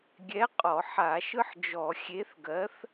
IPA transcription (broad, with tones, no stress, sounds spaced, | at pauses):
ɡʲ ɛ˨˥ qʼ ɔ˧˩˧ ħ a˧˩˧ ʃ ɯ˦ ħ d͡ʒ ɔ˧˩˧ xʲ e˨˥ θ ɡ ɜ˨˥ θ